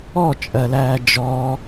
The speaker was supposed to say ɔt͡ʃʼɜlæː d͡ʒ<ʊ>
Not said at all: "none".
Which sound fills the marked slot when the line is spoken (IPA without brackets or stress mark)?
ɔ